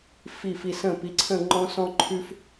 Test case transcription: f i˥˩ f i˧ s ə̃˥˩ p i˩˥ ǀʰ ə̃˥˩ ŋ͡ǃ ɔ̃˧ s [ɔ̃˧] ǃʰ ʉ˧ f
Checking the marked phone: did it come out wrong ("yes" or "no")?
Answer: no